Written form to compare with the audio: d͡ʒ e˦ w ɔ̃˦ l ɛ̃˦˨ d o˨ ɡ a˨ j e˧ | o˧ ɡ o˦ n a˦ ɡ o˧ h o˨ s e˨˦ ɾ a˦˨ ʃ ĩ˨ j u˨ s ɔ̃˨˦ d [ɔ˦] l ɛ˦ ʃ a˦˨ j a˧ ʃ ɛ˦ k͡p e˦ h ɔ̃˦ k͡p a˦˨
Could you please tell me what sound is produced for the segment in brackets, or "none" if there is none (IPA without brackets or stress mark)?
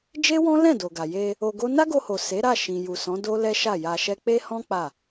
o˦